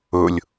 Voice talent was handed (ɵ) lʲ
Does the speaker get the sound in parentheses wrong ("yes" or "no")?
no